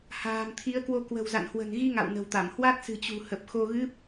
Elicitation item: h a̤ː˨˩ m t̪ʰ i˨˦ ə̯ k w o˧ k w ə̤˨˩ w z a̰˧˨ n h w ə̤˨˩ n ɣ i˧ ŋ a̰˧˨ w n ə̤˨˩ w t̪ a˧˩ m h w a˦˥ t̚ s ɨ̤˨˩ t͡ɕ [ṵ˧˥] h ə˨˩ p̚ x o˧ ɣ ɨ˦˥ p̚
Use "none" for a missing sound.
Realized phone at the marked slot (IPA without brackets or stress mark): ṳ˨˩